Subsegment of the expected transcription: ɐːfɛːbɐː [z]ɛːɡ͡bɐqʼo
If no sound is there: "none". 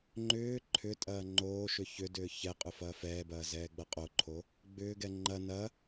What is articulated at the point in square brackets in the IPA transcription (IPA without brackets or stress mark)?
z